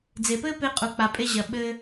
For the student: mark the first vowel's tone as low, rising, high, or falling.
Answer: low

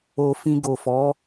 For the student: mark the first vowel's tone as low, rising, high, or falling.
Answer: low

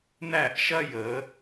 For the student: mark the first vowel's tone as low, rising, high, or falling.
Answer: falling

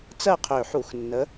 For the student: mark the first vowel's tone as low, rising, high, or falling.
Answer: falling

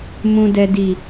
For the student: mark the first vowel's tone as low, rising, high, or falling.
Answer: low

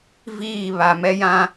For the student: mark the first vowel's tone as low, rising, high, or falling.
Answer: falling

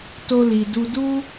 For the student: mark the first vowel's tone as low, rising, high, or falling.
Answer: high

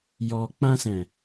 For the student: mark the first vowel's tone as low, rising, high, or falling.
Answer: low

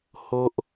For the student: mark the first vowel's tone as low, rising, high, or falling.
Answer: high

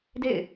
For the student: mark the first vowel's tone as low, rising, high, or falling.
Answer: falling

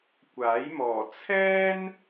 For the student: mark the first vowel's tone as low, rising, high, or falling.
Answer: rising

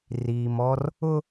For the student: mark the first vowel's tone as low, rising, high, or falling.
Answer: low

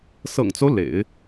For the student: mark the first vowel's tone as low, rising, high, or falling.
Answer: low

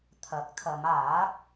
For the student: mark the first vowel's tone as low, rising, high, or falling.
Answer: rising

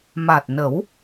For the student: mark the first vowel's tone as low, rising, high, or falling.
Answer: low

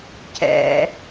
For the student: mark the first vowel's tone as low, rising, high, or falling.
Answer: low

